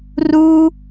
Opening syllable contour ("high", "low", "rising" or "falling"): high